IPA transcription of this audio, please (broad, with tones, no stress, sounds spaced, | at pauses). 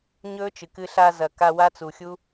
ɲ ɵː˦ t͡ʃ ɨ˨ k ɨ˧ ɬ a˧ z ɐ˨ k a˧ w a˦ t͡s u˨ xʲ u˦